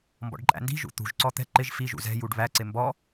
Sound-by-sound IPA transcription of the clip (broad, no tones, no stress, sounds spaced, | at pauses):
m b ɔ̰ ɖ ǃʼ æ̰ n d i̤ ʒ ṵ t̪ ṳ ʒ ǀ ɔ t̪ ɛ̤ ǃ ɪ ʒ f i ʒ ṵ z ɛ̤ j u ɖ β æ ǀ ɪ m b ɔ